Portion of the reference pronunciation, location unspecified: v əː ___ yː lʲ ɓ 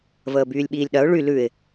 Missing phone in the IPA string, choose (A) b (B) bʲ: A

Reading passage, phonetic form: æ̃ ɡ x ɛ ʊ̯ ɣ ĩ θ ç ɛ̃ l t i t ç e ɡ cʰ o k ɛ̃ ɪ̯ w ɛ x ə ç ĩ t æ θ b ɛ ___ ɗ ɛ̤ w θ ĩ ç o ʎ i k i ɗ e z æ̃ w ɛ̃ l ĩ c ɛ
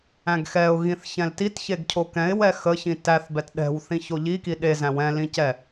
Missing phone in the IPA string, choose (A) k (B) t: B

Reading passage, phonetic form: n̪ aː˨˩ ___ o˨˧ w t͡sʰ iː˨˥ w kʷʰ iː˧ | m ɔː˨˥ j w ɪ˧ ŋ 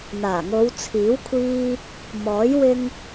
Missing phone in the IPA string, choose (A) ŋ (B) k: A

